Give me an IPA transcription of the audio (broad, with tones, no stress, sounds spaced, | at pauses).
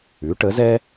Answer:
ʉ˩˥ ʈ ə˩˥ z ɛ˥